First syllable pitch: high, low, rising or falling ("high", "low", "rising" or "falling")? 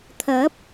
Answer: rising